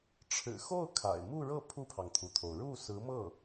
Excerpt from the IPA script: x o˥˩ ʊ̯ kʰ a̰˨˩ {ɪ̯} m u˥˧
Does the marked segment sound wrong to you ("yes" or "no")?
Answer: no